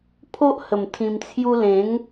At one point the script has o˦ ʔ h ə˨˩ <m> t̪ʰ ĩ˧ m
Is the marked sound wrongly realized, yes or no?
no